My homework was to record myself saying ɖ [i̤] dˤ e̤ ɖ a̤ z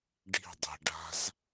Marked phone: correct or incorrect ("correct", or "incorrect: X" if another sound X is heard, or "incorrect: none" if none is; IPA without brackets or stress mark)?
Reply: correct